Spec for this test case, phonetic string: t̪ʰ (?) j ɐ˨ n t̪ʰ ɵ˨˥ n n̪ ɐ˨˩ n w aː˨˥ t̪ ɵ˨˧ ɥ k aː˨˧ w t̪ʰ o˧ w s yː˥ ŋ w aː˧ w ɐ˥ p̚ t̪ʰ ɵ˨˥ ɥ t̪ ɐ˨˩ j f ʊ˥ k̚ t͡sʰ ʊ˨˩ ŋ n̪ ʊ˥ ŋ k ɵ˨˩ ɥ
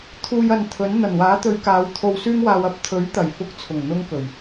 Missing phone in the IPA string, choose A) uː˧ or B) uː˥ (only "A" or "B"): A